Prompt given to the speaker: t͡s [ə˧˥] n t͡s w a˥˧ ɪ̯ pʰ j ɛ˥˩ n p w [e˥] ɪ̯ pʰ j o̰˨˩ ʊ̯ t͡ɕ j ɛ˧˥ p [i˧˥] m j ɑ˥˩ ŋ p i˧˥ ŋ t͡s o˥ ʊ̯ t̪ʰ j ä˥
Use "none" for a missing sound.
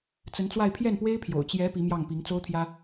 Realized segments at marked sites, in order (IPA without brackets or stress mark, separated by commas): ə˧˥, e˥, i˧˥